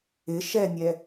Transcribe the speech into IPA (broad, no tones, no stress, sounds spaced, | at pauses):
ɪ ʃ ɛ nʲ ɛ